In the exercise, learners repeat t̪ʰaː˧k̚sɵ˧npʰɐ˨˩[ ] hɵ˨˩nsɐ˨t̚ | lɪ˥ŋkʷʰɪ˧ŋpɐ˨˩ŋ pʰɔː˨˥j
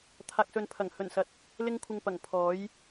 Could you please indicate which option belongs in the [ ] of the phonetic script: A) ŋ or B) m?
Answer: A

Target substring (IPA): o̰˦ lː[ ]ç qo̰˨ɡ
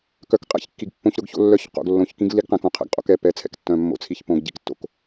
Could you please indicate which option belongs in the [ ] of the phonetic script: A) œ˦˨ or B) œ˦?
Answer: A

